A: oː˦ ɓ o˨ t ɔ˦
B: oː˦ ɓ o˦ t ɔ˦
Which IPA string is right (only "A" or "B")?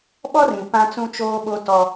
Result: B